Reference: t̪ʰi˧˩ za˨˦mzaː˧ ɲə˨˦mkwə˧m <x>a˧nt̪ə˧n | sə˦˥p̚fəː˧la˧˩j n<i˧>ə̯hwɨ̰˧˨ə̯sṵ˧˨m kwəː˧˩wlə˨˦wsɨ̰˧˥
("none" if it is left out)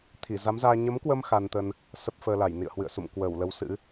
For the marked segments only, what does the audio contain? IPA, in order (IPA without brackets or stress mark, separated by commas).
x, ḭ˧˨